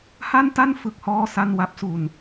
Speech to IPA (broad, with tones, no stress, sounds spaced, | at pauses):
h a˥˩ n t a˥˩ n f ɯ˥˩ k̚ h ɔː˥˩ s a˥˩ n w a˦˥ p̚ s u˧ n